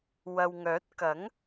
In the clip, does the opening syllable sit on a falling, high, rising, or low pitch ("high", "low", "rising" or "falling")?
low